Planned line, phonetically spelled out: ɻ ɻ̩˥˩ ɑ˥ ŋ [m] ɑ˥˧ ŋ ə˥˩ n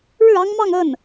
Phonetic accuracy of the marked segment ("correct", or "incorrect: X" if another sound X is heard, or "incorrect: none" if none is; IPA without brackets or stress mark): correct